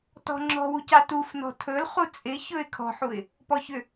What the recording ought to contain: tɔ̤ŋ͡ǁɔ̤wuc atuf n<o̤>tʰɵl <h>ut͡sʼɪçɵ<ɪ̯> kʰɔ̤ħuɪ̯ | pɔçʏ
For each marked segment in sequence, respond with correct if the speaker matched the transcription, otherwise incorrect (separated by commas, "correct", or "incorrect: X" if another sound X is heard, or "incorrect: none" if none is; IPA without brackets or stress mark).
incorrect: ɔ̤, incorrect: χ, correct